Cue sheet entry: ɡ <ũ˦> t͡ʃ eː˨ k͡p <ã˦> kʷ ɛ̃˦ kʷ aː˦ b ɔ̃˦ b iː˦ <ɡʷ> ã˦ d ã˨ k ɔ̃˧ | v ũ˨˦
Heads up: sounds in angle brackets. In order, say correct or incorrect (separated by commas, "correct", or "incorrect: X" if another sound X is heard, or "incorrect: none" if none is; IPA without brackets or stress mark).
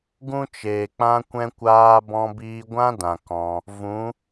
correct, correct, correct